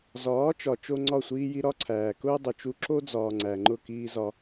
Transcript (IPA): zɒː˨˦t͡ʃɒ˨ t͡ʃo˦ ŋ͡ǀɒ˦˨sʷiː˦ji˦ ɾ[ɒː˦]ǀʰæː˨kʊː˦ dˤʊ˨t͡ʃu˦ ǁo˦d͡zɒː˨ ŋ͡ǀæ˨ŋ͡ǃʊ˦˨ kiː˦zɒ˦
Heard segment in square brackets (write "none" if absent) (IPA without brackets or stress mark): ɒ˦